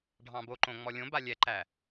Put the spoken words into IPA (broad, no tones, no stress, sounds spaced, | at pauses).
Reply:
ɖʱ ɑ̃ b o ǃ õ ŋ͡m ɔ lʲ õ b a lʲ ɛ ǃ æ